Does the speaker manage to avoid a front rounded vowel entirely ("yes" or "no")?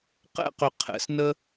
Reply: no